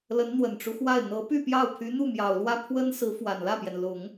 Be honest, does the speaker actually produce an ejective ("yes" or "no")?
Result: no